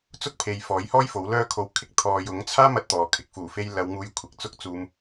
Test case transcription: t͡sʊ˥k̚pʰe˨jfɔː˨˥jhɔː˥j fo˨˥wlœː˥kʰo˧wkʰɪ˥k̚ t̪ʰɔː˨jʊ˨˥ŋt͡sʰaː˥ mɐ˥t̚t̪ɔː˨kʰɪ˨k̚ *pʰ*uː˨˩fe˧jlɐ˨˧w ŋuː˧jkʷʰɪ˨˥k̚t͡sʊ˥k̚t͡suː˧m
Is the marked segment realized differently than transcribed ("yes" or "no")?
yes